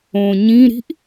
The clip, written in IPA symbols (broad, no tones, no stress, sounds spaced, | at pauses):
õ ɲ ĩ ɾ i̤ ʔ